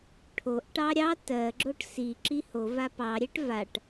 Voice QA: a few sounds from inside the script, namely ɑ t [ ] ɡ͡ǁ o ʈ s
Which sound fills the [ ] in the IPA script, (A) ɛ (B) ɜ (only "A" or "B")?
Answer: B